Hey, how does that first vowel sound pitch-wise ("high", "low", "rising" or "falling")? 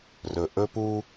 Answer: low